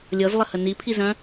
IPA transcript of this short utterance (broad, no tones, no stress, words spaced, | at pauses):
lʲɤzlˠəhə nipʰizœ̃